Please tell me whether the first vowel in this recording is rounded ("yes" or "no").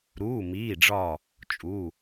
yes